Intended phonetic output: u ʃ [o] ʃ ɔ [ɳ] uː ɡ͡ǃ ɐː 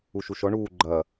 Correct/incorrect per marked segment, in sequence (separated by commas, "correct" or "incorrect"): incorrect, correct